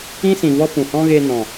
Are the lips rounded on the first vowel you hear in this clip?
no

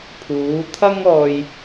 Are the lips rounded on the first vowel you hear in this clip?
yes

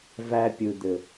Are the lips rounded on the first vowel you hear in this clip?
no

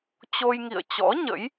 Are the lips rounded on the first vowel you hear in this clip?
yes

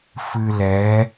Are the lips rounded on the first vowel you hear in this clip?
no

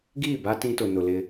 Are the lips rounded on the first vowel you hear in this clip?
no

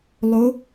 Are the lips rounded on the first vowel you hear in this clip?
yes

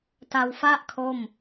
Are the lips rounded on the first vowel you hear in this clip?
no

